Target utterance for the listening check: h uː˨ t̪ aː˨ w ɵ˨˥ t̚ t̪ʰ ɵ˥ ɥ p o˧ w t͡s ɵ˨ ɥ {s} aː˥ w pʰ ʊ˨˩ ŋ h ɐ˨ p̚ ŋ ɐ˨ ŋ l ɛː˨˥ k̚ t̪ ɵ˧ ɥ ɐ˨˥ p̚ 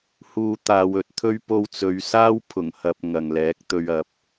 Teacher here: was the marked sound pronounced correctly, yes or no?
yes